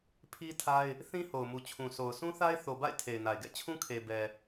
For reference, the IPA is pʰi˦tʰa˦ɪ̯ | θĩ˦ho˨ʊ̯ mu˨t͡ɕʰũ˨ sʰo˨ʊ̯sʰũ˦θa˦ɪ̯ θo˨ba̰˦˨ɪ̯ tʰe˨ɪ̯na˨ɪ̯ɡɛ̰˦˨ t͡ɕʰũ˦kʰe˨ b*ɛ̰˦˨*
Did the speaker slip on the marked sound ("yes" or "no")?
yes